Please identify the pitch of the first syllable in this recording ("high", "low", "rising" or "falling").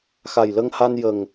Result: low